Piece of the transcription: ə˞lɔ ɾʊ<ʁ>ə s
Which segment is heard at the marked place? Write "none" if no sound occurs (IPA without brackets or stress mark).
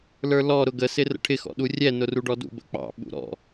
ɡ